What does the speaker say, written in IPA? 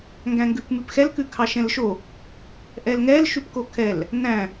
ŋ ɡ æ̃ ŋ ɡ ʉ p m ʉ p x ɛ l k ʉ kʰ ɑ ʃ ɛ̃ l ʃ o | ʔ ɛ l ŋ ɛ l ʃ ʉ p k o kʰ ɛ l | n æ̃

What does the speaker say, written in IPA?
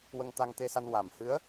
w ə˧ ŋ t̪ a˧ ŋ t̪ e˧ s a˧ n w a˨˩ m h ɨ˧˥ ə̯

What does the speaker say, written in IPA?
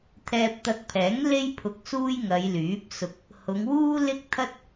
t̪ʰ ɛː˧ p̚ t̪ ɐ˧ k̚ pʰ ɛː˨˥ ŋ l e˥ j pʰ ʊ˧ k̚ s uː˥ j ŋ ɐ˨˧ j l yː˨˥ p̚ s ʊ˧ k̚ | h ʊ˨˧ ŋ w uː˥ l ɪ˥ k̚ t̪ʰ ɐ˥ t̚

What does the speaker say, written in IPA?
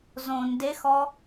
z õ n d e x ɔ

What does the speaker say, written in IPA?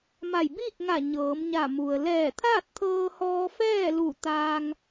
m a˧˩ j b iː˥˨ k̚ ŋ a˧˩ ɲ ɤː˩˧ m ɲ a˧˩ m u˩ ə̯ l ɛː˧˩ t̪ʰ aː˥˨ t̚ t̪ʰ ɤː˧ h ɔː˧ f ɛː˥˨ l u˧˩ t̪ aː˧ ŋ

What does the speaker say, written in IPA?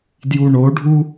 d j u ɳ o ɖʱ u

